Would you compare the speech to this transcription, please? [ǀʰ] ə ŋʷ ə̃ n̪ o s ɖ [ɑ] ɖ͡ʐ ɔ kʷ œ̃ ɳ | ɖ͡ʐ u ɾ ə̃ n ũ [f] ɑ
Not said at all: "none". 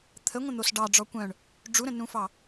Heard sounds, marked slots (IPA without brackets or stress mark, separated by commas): t̪ʰ, ɑ, f